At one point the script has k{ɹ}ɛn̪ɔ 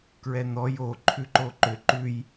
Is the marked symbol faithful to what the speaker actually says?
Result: yes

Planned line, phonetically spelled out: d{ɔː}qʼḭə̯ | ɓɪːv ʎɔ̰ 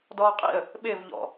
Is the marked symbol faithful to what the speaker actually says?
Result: yes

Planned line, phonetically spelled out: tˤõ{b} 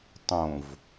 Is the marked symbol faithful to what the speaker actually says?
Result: no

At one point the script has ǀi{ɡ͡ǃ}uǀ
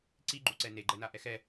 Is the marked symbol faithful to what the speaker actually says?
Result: yes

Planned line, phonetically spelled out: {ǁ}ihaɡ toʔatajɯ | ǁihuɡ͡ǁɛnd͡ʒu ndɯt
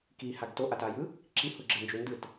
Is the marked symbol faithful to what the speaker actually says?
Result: no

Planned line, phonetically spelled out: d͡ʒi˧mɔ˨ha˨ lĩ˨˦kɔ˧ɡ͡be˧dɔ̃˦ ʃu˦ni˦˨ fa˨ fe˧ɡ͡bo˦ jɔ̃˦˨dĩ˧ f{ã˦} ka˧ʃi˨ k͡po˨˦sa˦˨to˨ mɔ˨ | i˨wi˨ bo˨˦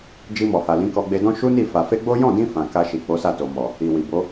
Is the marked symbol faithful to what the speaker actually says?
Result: no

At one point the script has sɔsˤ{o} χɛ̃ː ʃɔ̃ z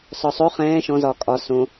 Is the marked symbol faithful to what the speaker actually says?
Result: yes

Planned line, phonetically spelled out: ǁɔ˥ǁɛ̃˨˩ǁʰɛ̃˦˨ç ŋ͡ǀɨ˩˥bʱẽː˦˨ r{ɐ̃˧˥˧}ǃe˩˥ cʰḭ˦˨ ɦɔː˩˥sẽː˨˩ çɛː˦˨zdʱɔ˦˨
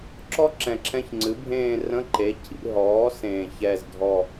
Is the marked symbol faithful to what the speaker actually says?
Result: no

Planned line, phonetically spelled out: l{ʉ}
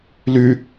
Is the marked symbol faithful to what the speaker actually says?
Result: yes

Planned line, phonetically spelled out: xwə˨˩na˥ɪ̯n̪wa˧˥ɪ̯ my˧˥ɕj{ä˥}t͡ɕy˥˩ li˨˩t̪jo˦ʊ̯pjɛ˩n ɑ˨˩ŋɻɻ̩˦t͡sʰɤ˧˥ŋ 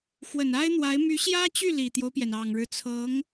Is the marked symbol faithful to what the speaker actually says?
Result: yes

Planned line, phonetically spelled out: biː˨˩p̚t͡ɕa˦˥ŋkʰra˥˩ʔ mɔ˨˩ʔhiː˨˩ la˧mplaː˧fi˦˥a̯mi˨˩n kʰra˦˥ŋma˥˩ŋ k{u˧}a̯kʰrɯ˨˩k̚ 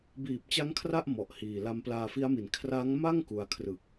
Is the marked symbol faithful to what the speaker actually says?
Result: yes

